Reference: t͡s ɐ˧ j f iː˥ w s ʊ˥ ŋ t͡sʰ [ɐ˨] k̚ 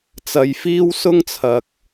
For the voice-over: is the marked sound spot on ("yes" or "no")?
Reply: yes